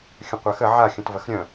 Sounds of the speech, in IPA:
xʲə̃qʷaxə ʕa xʲə̃tvɐxɾʲœ̃

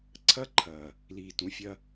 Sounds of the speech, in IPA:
ǀʰɐ˦ǃʰɐː˨ | liː˨tũ˨fʲɐ˧

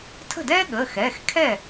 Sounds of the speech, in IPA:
tʰə̤˥˩dɛː˥ɠəː˩˧˩xɛː˩˧˩x kʰɛ˥˩

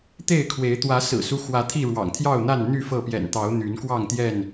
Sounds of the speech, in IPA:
t̪e˥˨ɪ̯kʰwe˨˦ɪ̯ t̪wä˨˦sɹ̩˨˩su˦xwä˨˦ t̪ʰi˥˨ɻwɑ̰˨˩ŋ t̪ʰjɑ˥˨ʊ̯n̪a˥˨n n̪y˥˨fɤ˥˨ pjɛ̰˨˩nt̪ɑ˨˦ʊ̯ n̪y˨˦nkwɑ˥˨ŋt̪jɛ˥˨n

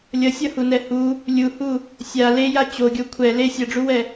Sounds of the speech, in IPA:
lʲʌsʲʌhunɛ hu | lʲuhu | sʲa leja t͡ɕoɡʲo kʷʰɛ le sʲʌɖ͡ʐuwɛ

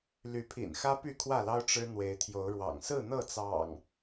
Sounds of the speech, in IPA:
ly˨˦pʰḭ˨˩nxä˦ py˥˨kʰwä˥˨lɑ˦ʊ̯ ʈ͡ʂɻ̩˦n̪we˨˦ɪ̯t̪ʰjo˨˦ʊ̯ɻwɑ̰˨˩ŋ sɹ̩˥˨n̪ɤ˥˨t͡sɑ̰˨˩ŋ

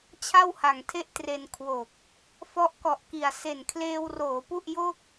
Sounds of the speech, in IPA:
t͡ɕʰa˥˩wha˨˩ŋtʰe˥˩ʔtre˧n kʰwo˨˩k̚ | fɔ˦˥ʔkɔ˨˩ʔki˨˩a̯ se˨˩nkʰleː˧wroː˩˦pu˥˩ʔ jo˥˩k̚

